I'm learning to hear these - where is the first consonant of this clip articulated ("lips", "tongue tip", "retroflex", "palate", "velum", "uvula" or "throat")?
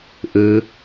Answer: throat